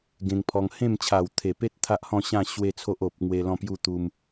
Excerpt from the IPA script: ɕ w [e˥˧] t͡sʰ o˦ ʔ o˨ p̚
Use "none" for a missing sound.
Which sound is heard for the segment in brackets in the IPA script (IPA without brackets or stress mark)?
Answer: e˥˧